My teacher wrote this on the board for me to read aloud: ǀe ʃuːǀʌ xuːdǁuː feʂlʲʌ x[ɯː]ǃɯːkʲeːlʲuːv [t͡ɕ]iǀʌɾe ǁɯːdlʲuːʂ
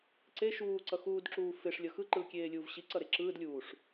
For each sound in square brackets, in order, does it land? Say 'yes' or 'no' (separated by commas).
no, no